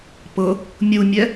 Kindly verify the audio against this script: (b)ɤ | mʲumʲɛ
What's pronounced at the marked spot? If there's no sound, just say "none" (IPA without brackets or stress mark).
p